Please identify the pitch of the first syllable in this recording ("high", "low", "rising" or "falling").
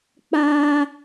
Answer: high